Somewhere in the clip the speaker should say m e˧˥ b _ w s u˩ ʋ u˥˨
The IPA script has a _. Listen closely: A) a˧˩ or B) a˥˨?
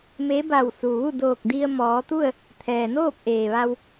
A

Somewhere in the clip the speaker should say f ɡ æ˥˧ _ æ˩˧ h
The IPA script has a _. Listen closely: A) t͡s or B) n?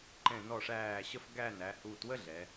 B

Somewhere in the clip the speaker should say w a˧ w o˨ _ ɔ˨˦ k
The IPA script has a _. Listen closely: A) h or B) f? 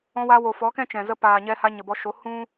B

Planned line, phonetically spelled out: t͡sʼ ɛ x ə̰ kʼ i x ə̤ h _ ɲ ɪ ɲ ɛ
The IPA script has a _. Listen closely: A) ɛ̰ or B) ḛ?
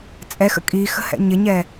A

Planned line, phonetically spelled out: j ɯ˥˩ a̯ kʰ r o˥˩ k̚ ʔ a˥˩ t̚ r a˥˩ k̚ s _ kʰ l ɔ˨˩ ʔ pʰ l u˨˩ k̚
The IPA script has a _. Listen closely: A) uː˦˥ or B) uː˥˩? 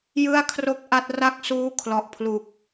A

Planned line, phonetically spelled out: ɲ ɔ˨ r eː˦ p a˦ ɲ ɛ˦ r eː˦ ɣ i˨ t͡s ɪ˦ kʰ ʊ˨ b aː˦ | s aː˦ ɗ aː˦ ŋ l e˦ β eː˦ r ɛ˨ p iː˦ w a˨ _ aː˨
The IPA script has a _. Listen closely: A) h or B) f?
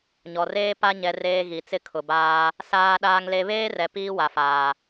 B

